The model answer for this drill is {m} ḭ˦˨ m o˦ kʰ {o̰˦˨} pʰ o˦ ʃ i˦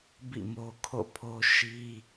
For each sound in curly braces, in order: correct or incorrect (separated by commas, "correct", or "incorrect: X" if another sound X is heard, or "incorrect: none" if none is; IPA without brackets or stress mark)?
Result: incorrect: b, correct